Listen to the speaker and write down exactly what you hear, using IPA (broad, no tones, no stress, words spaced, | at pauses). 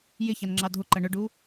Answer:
jɪçɑnŋ͡ǁɑ dʱʊǃʌ ɳʊɖu